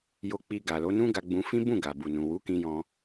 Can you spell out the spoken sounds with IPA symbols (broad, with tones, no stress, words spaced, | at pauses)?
jo˧ k͡pi˧ɡa˨lo˨˦nũ˦ ɡa˧ɡ͡bũ˧fĩ˦ bũ˦˨ ɡa˨bu˨nũ˨wu˨˦ kĩ˧jɔ̃˧